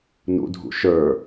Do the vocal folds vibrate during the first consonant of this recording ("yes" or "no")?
yes